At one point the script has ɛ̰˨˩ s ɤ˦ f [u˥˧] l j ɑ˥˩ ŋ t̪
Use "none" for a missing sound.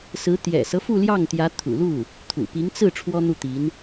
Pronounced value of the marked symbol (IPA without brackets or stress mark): u˥˧